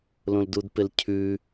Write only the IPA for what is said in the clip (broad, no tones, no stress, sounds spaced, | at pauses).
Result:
l õ l d u d p ɪ l cʰ ʉ